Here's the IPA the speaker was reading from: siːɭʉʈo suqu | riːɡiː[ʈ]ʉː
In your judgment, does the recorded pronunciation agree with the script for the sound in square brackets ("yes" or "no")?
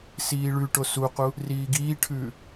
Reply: no